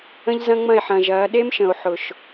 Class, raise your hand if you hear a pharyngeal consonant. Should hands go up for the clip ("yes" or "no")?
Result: yes